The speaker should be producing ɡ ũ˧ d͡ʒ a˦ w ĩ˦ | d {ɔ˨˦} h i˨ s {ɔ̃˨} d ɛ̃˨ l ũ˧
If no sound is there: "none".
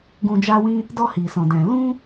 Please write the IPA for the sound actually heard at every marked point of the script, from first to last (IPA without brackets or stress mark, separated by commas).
ɔ˧, ɔ̃˨